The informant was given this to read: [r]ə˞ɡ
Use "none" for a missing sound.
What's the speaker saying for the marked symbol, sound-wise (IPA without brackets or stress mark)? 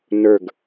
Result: n